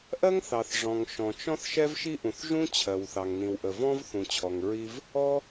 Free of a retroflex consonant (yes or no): no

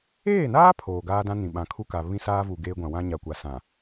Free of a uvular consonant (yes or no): yes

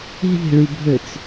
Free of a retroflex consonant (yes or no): no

